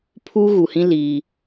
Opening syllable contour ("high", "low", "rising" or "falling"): high